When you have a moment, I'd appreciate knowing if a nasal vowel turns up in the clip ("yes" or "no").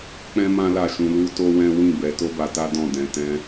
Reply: yes